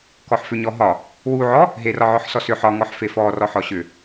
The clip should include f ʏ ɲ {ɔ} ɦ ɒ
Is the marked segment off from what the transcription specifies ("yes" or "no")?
no